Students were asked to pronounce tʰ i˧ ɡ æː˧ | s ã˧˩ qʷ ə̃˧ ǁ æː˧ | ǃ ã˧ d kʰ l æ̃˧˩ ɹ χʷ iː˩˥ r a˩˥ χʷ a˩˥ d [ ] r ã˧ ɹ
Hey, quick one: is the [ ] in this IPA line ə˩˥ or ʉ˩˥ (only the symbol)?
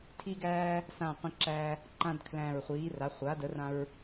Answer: ə˩˥